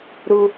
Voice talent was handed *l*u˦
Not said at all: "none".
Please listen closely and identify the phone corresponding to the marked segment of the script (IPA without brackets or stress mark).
ɾ